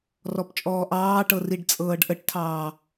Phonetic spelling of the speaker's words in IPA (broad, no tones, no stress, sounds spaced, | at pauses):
r ɔ p t͡ʃʼ ɔː ʔ ɑː ʈ ɤ r i ɖ t͡sʼ ɤː ɖ ʔ ə ʈ tʰ ɑː